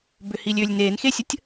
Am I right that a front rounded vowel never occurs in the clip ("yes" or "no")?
no